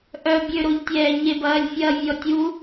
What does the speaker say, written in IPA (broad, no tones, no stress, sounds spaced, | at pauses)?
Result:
ʔ œ bʲ ø ɾ o ʎ tʲ ɛː ɲ e b ɐː lʲ fʲ ɐː vʲ ɔ tʲ u